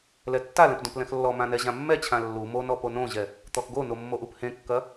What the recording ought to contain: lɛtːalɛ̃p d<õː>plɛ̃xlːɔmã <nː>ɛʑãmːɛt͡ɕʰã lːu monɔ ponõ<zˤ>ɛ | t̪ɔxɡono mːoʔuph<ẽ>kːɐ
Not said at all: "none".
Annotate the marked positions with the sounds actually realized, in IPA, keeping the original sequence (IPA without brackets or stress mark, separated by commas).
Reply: õ, n, ʑ, ẽ